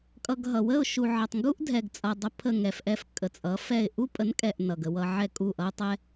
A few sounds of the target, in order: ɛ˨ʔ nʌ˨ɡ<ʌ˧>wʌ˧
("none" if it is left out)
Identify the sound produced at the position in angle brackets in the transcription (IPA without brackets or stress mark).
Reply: ə˧